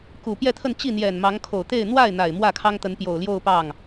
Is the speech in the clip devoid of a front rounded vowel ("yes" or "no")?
yes